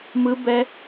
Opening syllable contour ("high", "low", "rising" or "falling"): high